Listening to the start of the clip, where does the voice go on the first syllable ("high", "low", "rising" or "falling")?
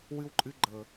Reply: high